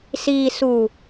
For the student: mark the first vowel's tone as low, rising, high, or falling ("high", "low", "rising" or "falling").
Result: low